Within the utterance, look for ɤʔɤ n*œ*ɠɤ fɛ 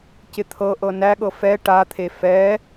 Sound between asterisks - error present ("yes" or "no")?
yes